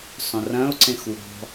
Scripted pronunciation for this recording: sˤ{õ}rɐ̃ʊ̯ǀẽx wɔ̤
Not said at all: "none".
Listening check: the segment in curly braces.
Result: õ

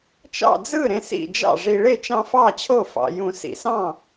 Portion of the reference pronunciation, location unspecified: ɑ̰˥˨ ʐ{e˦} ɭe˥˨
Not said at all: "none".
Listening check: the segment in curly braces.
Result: i˦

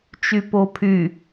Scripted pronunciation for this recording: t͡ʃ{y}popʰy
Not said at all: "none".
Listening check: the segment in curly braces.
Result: y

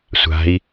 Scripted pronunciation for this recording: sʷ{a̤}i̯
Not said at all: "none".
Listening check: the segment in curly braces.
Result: a̤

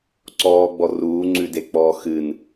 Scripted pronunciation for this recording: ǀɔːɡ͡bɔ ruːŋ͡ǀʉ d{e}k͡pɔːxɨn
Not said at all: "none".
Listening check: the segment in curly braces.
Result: e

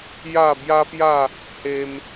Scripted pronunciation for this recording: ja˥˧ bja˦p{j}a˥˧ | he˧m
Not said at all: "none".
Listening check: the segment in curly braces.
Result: j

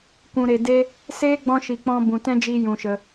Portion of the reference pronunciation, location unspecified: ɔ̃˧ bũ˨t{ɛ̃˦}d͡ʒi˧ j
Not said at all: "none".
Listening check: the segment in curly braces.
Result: ɛ̃˦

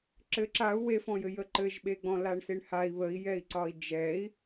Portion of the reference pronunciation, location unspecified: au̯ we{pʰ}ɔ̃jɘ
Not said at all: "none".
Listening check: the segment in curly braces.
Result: f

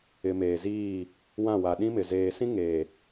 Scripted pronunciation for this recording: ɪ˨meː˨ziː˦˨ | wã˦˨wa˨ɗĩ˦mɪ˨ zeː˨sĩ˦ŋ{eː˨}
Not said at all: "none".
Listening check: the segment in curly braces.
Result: eː˨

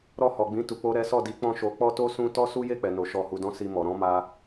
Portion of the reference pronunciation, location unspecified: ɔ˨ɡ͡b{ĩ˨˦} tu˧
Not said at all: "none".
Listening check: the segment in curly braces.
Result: ĩ˨˦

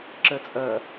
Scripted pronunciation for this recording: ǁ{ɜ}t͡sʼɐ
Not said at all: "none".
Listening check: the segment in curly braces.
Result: ɜ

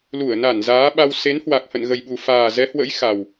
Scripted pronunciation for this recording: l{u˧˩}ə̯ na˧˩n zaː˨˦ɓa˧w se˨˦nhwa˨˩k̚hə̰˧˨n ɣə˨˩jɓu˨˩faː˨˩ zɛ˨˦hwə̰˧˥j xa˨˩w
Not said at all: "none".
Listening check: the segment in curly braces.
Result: u˧˩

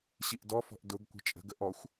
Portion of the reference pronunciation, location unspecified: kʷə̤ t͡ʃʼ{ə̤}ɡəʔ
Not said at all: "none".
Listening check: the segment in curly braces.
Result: ə̤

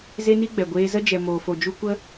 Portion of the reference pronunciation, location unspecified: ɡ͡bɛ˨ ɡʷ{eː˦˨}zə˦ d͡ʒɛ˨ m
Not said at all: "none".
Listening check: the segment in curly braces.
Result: eː˧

